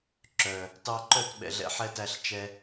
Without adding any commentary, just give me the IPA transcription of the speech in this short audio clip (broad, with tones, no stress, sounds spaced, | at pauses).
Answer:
ǁ œ˨ | t ɑ˧ ǃ œ˦˨ t ɓ ɛ̰˨ ɮ ɛ̰˧ ħ ɛ˧ t æ˧ ɬ t͡ʃ ɛ˧